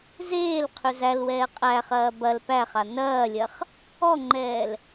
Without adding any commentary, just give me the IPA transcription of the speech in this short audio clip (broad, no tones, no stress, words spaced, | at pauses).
zeːl qʰʏzælwɛː qʼæχɐː bɐl pæχa nɐːlʲɐχ | ɔŋ͡ǃɛːl